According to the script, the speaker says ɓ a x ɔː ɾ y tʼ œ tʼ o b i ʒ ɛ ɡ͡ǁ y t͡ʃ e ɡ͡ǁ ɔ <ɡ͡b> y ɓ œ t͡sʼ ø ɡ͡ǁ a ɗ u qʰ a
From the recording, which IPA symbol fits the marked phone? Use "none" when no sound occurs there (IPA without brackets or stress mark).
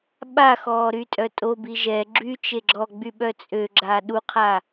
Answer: ɡ͡b